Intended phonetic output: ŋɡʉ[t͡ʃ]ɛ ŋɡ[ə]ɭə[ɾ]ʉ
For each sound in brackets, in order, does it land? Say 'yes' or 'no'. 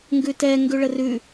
no, no, no

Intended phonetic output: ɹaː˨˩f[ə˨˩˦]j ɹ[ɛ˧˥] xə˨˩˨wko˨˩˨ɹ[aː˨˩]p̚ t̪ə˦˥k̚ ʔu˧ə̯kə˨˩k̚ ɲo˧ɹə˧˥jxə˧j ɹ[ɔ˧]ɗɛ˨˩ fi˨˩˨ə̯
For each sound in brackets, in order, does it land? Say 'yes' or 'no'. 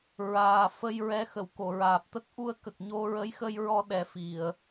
no, yes, yes, yes

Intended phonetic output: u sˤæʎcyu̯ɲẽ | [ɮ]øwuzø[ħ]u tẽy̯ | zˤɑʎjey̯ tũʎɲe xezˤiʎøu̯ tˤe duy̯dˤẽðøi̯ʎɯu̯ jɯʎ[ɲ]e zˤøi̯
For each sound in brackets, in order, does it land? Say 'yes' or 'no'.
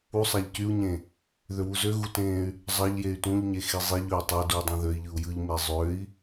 no, no, no

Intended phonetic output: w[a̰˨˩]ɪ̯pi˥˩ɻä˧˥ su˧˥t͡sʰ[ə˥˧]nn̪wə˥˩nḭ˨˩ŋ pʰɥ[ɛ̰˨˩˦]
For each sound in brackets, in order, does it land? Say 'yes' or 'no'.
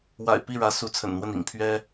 yes, no, no

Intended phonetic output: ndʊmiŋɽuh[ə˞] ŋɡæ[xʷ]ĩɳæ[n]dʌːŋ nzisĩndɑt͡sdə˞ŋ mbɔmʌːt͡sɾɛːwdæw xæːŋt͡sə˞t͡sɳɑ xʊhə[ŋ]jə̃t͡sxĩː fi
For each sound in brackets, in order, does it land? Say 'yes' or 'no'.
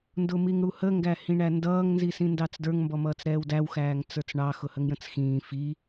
no, no, yes, yes

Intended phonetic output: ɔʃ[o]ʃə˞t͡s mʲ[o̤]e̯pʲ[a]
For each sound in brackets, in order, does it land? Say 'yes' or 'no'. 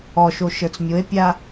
yes, no, yes

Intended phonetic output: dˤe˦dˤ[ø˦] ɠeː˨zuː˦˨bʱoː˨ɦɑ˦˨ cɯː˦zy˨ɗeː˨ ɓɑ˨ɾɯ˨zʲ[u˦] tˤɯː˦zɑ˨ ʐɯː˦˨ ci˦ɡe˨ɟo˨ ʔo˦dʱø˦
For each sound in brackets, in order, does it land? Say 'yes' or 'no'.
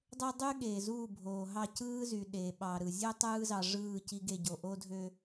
no, no

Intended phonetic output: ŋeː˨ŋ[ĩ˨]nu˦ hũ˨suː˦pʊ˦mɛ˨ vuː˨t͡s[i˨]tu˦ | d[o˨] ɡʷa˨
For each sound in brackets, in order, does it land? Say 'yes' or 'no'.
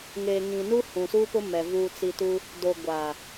yes, yes, yes

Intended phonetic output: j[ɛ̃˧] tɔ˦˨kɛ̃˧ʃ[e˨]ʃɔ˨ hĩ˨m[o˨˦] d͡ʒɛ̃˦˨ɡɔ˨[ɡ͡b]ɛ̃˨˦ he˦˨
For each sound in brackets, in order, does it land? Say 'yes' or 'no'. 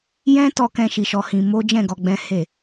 no, no, yes, yes

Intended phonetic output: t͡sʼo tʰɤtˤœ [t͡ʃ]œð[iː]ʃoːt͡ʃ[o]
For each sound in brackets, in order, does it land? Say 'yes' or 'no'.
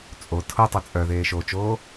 no, no, no

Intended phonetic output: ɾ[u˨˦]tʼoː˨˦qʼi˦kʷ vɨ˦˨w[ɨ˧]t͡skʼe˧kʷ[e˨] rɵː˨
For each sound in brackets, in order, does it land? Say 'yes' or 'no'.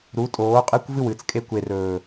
yes, yes, yes

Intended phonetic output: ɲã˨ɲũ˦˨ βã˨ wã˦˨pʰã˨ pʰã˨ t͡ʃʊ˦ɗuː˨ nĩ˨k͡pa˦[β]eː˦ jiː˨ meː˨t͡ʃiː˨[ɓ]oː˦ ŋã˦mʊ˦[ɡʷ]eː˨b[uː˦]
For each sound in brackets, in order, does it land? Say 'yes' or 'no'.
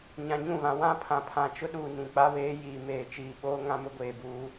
yes, yes, yes, yes

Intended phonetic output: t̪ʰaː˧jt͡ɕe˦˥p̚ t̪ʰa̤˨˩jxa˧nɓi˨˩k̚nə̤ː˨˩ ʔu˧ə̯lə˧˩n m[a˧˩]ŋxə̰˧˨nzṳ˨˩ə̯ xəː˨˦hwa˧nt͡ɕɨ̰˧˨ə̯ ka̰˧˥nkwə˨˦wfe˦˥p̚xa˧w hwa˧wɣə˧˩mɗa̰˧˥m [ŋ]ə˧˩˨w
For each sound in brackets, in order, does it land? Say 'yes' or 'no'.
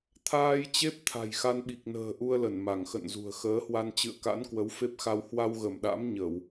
yes, no

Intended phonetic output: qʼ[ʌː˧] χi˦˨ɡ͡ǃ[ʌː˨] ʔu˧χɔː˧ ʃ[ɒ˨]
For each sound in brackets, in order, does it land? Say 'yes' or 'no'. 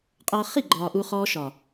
yes, no, yes

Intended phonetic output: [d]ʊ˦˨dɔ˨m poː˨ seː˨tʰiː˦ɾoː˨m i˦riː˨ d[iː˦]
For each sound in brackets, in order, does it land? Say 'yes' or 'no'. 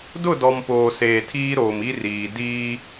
yes, yes

